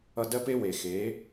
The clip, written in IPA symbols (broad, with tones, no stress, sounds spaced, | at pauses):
ʌ˧ d ɜ˦ p e˦ w e˨ x e˨˦